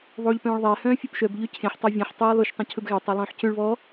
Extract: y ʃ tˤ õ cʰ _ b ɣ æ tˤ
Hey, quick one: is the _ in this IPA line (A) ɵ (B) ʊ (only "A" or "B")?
A